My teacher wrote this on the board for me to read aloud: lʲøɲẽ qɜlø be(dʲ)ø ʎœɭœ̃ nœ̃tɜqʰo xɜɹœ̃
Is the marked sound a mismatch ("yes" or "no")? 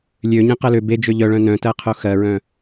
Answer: yes